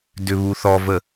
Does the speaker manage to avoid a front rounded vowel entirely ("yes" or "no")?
no